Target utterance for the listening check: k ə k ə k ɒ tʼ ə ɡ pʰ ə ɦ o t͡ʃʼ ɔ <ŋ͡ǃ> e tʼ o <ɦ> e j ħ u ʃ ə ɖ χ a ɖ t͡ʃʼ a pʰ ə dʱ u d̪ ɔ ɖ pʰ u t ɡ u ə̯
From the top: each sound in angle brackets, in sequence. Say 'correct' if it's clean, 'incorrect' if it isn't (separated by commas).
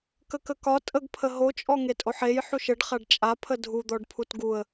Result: incorrect, incorrect